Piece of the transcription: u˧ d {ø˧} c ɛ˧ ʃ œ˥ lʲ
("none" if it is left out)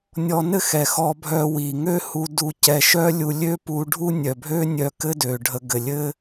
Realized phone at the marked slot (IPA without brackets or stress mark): u˧